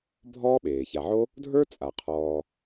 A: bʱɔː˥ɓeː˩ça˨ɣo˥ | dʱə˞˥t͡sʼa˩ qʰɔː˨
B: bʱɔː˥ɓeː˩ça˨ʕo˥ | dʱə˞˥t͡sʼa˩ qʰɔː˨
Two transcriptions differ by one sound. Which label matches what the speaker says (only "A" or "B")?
B